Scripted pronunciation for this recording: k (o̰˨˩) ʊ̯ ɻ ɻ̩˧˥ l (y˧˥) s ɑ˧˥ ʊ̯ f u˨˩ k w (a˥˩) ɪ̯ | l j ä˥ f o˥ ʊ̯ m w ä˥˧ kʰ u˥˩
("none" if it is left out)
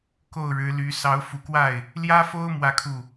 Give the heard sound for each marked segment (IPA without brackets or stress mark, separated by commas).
o˥˩, y˧˥, a˥˩